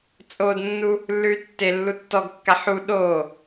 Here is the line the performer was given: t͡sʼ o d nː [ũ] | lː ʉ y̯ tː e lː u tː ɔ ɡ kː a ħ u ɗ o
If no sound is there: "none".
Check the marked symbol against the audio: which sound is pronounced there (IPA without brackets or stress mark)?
u